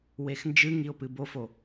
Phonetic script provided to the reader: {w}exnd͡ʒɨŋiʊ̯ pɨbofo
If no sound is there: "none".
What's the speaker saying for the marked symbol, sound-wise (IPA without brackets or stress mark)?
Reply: w